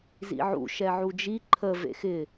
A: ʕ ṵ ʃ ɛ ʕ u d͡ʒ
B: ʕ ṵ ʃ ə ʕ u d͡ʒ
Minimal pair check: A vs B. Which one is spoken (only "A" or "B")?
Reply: A